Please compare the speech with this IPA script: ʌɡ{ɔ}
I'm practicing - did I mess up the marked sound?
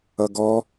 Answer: no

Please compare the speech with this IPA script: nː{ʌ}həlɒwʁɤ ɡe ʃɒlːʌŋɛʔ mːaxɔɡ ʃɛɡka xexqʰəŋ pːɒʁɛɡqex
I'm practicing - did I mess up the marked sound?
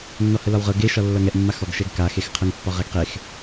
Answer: yes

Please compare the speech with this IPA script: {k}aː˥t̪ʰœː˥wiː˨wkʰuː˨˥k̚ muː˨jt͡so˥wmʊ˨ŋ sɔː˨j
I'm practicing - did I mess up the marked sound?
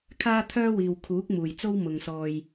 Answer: yes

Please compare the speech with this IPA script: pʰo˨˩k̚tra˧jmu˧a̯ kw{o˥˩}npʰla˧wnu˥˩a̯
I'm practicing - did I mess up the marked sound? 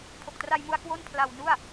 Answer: no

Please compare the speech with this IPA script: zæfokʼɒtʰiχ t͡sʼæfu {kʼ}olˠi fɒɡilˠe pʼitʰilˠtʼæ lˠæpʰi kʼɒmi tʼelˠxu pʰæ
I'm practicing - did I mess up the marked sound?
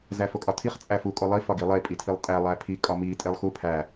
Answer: no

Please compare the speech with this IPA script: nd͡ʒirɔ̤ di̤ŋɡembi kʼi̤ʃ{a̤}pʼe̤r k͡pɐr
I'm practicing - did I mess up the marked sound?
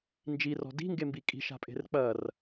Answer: no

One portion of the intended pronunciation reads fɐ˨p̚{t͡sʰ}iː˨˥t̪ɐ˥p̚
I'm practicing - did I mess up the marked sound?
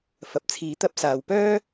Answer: no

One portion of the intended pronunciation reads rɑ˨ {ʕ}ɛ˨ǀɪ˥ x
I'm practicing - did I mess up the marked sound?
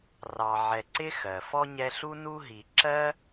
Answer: no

